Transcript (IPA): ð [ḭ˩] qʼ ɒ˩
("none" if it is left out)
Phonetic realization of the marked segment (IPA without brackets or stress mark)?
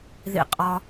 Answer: ḭ˩